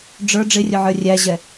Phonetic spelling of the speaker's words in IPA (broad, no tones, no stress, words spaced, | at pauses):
ɖ͡ʐə˞ ɖ͡ʐɪrʲʊʕə˞ rʲæʑɛ